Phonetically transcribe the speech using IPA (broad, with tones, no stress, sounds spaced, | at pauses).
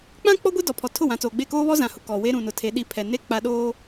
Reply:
k͡p ã˦ k͡p ɔ˦ ɡʷ e˦ d ɔ˨ pʰ ɔ˨ tʰ ʊ˦˨ w ã˨ t͡s oː˨ ɡ͡b e˦˨ k oː˦ β ɔ˦ z ã˨ h ʊ˨ k ɔ˨ w e˦ ɾ ũ˨ n ʊ˨ tʰ e˨˦ ɗ i˦ pʰ ɛ˨ n e˦ k͡p a˦ ɗ oː˦